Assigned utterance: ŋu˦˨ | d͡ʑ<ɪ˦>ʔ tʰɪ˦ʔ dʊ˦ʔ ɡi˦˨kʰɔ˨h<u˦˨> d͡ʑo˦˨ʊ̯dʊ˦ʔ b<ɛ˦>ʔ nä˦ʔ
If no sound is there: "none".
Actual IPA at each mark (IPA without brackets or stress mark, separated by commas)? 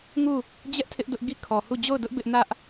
ɛ˦, u˦˨, ɪ˦